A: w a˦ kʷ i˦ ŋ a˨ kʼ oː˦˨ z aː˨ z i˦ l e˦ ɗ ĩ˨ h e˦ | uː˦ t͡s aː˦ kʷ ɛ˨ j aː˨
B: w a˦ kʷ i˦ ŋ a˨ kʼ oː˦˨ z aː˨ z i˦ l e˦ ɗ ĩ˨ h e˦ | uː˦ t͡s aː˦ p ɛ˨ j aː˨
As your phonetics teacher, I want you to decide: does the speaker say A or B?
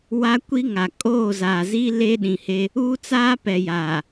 B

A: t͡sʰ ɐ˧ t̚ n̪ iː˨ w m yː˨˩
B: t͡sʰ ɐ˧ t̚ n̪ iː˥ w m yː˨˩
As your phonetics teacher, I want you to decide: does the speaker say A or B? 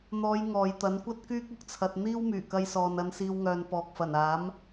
B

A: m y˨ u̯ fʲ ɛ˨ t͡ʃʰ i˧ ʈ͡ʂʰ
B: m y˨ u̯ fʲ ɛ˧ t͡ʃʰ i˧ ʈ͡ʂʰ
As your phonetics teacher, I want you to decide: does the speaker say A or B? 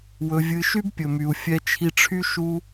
B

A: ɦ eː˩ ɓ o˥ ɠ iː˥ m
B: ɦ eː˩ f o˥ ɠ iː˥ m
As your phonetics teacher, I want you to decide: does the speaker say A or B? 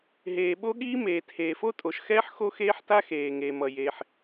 A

